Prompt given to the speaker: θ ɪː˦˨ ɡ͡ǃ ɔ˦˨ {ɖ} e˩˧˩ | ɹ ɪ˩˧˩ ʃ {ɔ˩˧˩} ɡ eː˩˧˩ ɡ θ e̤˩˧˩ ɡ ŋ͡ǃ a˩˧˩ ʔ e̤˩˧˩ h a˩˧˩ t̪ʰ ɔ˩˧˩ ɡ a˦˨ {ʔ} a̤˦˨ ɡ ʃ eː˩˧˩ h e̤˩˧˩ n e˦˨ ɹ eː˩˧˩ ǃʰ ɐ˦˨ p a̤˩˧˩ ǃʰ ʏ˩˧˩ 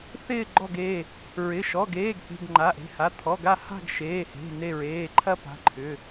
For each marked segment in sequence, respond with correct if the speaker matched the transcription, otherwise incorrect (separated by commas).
incorrect, correct, incorrect